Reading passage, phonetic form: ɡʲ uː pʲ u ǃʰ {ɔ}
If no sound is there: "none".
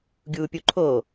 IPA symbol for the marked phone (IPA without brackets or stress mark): o